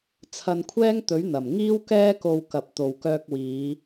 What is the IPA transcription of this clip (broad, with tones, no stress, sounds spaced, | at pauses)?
t͡sʰ ɐ˧ n kʷʰ ɛː˥ ŋ t̪ ɵ˨˥ ɥ n̪ ɐ˨˩ m ŋ iː˥ w k ɛː˥ k o˧ w k ɐ˨ p̚ t̪ o˨ w k œː˧ k̚ w iː˨˧